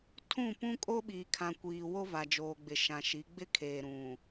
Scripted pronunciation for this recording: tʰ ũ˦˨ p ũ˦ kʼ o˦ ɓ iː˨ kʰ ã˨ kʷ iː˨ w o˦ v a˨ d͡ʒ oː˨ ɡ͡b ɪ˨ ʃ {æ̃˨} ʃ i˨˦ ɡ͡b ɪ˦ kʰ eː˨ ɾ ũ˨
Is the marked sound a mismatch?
yes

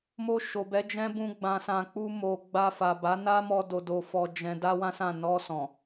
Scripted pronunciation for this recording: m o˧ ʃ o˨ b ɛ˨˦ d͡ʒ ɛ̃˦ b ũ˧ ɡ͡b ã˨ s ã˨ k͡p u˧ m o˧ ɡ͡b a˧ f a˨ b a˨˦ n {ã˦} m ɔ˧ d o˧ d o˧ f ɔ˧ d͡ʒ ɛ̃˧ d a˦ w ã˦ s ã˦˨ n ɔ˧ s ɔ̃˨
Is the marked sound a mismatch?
yes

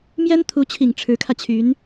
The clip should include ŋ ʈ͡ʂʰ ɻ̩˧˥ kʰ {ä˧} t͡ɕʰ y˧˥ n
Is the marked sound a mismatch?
no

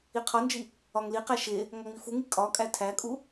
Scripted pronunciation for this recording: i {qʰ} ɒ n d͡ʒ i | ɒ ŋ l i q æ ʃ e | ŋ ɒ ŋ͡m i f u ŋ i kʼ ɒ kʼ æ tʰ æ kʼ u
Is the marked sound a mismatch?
no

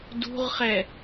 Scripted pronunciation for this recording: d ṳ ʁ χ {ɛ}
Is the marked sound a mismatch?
no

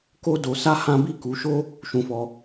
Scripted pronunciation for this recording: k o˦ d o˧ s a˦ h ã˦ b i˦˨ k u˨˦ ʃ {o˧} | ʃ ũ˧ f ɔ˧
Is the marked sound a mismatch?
yes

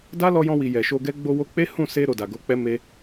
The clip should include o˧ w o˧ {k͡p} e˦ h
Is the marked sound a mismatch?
no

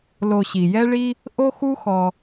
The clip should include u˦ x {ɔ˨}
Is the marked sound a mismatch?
no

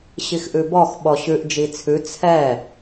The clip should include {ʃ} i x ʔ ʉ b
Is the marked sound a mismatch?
yes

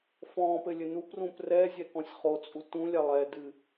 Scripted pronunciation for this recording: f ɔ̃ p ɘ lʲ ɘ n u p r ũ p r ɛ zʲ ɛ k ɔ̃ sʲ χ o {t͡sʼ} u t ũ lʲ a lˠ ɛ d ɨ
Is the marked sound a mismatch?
no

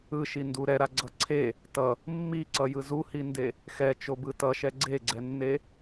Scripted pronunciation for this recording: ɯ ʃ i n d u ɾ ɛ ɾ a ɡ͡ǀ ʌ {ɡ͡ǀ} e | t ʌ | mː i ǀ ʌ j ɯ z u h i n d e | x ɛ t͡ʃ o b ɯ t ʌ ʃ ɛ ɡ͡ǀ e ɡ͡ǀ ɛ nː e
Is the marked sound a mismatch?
yes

